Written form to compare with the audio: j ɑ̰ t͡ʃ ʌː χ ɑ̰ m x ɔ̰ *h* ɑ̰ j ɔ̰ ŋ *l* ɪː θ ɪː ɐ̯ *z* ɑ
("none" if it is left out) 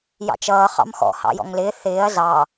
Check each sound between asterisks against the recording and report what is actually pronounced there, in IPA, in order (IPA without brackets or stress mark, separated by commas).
h, l, z